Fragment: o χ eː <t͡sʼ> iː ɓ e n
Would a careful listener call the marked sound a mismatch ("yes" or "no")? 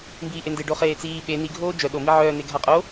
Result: yes